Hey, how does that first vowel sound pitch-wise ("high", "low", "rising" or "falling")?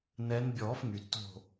rising